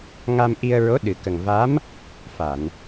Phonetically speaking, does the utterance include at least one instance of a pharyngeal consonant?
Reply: no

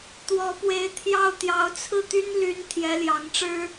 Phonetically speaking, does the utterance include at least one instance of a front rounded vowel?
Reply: yes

